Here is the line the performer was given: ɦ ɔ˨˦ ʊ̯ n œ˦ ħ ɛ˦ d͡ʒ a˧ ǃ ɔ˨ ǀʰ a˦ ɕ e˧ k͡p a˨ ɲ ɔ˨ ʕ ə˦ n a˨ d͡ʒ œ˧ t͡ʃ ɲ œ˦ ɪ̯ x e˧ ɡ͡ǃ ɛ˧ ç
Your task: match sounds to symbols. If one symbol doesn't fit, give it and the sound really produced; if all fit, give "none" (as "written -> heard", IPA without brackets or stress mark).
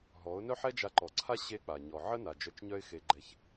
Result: none